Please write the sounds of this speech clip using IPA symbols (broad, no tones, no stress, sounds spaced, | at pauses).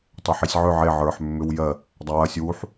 tˤ e ħ i sʲ ʕ ʏ ʕ e ʕ ə˞ ħ mː ʏ w j ɜ | dˤ ɐ w ɐ sʲ w u ħ